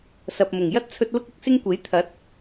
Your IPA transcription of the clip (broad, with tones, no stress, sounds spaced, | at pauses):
s ɐ˨ p̚ m ʊ˨˩ ŋ j ɐ˥ t̚ t͡sʰ ɵ˧ t̚ l ʊ˥ k̚ ʊ˧ k̚ s ɪ˥ ŋ kʷ e˨˥ j t̪ʰ ɐ˨˥ t̚